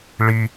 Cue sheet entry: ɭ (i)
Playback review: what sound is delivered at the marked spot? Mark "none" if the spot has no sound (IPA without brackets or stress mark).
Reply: i